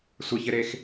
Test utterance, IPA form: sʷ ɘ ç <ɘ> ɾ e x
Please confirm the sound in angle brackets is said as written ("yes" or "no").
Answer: yes